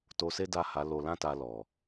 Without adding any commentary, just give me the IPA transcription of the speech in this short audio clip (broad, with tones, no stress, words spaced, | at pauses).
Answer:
to˧se˦ da˦˨ha˨˦lo˧ lã˦ta˧ lɔ˨